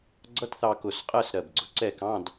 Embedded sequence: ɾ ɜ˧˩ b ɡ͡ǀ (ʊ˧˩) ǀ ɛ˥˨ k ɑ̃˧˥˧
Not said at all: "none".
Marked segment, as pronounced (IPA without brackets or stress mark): ʊ˩˧